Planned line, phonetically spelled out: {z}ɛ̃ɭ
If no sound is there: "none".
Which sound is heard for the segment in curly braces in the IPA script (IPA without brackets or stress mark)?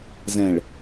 z